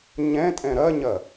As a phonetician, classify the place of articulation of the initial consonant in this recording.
palatal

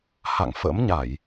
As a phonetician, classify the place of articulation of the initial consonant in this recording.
glottal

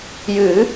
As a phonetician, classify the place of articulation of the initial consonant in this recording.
palatal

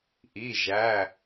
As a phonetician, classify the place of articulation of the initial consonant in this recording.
glottal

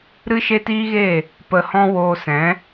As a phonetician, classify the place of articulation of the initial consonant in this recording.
alveolar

